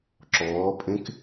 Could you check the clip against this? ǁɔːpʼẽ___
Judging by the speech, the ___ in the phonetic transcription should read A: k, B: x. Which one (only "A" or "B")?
A